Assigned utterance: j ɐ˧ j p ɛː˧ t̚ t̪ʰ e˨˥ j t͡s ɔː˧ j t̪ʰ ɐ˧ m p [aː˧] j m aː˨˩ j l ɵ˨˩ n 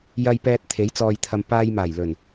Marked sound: correct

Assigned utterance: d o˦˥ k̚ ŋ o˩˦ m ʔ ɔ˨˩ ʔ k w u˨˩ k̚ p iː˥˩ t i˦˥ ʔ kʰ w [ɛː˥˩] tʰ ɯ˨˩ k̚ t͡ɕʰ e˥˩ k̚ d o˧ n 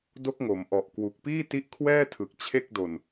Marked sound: correct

